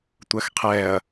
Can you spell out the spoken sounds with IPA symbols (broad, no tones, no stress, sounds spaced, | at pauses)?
tʷ ɜ x qʰ ɛː ɐ̯